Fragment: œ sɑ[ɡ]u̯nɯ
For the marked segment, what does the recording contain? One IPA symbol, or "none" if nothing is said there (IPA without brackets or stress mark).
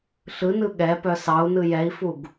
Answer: none